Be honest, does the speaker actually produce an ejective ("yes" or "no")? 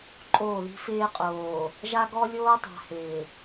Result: yes